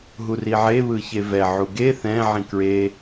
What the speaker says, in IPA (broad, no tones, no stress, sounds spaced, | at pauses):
ɦ u r i ʕ e β ɯ ç e v ɛ ʕ u ɡ e θ ɛ̃ ʕ ĩ k ɹ e